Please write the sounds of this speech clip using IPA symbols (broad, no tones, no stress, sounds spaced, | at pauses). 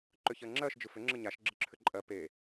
ǃ ʏ ç ɜ ŋ͡ǁ ɜ ʃ d͡ʒ ɯ f ʏ ŋ͡ǁ ɯ ɲ a ʃ ɡ͡ǁ ɯ ǁʰ ʏ ǃʼ ɜ p e